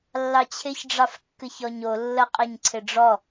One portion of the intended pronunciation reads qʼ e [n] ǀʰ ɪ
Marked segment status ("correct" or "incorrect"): incorrect